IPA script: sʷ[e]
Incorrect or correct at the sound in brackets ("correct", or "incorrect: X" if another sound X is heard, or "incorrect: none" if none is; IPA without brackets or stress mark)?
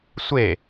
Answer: correct